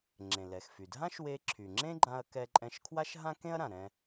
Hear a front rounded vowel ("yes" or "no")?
yes